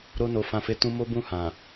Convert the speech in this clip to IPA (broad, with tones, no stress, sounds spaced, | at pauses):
ɾ o˧ n o˨ f ã˨ f e˨˦ t ũ˧ m o˦ b ũ˦˨ h ã˨